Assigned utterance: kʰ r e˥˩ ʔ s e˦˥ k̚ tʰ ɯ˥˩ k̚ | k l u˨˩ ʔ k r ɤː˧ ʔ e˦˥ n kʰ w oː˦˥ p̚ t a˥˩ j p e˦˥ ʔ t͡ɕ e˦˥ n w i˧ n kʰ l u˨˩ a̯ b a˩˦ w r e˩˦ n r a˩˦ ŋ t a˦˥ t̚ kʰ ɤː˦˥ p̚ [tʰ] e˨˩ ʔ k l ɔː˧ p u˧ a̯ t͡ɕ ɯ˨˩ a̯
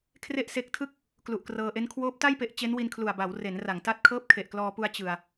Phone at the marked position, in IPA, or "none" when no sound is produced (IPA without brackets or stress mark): kʰ